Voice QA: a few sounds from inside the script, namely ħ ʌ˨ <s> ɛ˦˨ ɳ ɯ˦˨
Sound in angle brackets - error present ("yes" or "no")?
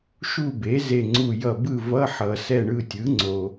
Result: no